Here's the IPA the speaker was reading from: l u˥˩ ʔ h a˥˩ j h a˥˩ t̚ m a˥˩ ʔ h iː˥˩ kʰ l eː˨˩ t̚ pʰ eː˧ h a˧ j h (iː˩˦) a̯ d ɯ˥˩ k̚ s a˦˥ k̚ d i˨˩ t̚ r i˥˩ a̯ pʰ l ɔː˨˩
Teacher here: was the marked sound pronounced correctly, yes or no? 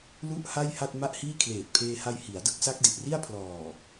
no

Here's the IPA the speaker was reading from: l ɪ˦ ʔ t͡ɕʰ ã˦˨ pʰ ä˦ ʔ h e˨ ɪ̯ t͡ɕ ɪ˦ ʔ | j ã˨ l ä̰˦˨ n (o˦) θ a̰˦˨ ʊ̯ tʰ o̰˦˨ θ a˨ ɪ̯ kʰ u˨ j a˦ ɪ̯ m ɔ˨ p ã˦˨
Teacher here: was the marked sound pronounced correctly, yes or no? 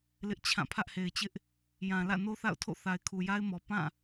yes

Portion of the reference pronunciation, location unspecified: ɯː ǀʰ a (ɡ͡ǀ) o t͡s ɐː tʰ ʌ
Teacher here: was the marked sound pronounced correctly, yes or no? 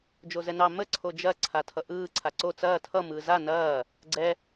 no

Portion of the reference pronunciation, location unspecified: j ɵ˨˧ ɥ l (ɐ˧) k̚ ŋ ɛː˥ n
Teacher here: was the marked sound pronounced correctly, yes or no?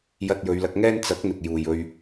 yes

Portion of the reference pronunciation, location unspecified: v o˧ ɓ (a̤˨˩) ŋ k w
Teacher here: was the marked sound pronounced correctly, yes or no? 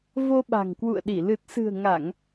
yes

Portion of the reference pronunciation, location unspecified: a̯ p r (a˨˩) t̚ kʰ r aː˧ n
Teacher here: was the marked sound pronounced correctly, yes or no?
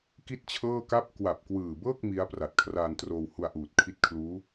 yes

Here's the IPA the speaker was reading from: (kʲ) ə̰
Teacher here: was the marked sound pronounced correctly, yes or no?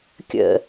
yes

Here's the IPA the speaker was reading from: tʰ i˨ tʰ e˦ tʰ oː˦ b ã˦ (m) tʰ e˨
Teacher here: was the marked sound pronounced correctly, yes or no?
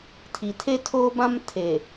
yes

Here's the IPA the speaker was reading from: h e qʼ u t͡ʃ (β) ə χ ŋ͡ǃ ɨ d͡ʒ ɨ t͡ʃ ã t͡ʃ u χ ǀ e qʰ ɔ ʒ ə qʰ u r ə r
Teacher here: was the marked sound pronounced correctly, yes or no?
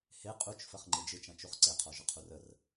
no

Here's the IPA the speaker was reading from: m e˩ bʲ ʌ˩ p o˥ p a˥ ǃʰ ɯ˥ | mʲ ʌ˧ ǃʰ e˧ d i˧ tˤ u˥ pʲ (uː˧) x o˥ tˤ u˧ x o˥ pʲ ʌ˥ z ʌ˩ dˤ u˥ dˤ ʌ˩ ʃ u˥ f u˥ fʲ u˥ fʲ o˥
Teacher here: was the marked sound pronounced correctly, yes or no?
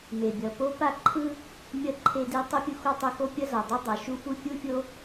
no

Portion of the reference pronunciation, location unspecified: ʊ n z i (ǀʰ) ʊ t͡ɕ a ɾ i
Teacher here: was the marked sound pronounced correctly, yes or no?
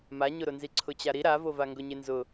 yes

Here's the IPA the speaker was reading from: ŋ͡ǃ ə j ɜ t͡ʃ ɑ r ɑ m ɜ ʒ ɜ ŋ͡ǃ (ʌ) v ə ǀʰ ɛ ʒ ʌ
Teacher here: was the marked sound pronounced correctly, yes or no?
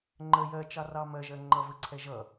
yes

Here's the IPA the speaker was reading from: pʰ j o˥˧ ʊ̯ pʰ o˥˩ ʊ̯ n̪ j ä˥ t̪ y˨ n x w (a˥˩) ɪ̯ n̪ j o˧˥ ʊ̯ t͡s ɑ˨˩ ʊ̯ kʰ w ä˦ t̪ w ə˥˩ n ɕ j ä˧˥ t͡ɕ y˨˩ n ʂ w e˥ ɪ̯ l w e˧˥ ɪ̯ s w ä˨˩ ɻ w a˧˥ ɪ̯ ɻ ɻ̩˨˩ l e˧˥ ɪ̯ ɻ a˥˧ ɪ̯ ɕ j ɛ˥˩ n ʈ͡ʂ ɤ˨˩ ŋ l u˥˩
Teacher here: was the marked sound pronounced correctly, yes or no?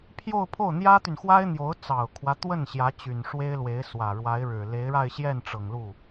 no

